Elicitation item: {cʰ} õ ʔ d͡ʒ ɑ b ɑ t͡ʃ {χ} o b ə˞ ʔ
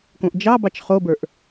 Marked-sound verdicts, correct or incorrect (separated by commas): incorrect, correct